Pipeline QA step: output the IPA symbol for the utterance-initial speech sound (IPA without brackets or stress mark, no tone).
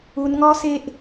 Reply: u